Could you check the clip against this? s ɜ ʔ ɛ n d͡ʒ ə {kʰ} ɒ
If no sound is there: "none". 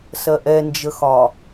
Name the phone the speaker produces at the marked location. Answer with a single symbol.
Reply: x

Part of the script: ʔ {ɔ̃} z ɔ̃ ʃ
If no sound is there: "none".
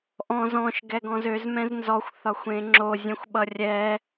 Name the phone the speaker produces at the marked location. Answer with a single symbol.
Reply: ɔ̃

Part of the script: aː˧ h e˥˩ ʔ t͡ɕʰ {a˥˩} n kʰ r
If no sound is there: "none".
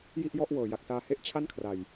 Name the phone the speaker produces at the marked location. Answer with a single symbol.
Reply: a˥˩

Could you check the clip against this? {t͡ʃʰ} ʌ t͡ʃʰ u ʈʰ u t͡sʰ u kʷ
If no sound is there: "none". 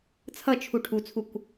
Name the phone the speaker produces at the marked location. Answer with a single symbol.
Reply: t͡sʰ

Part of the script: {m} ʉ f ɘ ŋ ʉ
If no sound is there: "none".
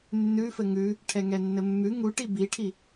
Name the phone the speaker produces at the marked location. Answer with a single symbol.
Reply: nː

